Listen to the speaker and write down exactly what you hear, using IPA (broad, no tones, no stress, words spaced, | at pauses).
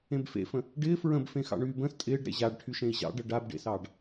ẽbfḛfə̃ | ɖɪː fɹə̃bfẽ xɑ̰ɳyːbə̃ːs tʼɪːɖ ɾḛʑaɖ ʈʰyʃẽi̯ʑɑ̰ɖɤ ɖabɖḛsɑːɖ